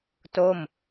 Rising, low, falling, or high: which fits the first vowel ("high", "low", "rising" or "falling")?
falling